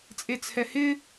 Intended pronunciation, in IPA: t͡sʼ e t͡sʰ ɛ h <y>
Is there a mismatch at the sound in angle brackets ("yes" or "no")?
yes